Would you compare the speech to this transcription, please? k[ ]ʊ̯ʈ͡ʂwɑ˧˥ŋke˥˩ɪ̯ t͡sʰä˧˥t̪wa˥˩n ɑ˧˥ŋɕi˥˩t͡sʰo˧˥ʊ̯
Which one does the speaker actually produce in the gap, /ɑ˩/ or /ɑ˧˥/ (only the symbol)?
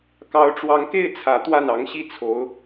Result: ɑ˧˥